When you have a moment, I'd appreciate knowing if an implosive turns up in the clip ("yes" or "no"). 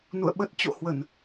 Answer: yes